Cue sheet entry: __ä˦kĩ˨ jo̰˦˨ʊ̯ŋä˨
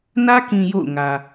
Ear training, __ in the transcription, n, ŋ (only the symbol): n